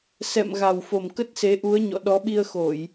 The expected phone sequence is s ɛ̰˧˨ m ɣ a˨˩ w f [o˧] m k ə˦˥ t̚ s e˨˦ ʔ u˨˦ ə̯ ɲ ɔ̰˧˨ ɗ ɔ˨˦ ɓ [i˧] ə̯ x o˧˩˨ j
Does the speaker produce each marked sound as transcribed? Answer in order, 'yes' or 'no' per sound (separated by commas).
no, yes